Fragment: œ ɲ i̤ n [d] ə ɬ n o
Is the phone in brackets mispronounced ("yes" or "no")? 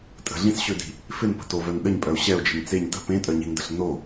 no